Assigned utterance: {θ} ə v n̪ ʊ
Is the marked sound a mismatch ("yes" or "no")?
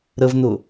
yes